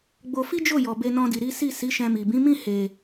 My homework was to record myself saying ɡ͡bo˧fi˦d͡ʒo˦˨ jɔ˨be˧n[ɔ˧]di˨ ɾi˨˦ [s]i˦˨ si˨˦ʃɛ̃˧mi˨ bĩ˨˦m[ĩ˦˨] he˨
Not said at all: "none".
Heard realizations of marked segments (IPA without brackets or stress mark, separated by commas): ɔ̃˧, s, ĩ˦˨